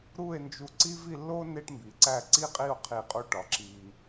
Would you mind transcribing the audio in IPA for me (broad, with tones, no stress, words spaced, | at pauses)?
ɾu˥˧e̯nd͡ʒu˧ ǀi˥vi˥˧lːo˥ ne˥ʈmbi˩˧ǀæ˥˧ ǀi˥qʼi˥˧o̯qʰi˧˩ qʼu˧ʈɒ˩˧ ǁi˧